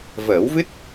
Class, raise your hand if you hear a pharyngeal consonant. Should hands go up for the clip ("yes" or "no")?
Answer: no